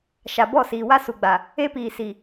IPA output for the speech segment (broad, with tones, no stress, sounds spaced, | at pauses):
ʃ a˨ b ɔ˦˨ s iː˨ w a˦ s u˨ ɡ͡b a˨ | e˦ p iː˨ s i˨